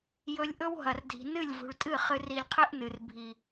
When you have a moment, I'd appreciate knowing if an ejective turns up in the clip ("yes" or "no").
yes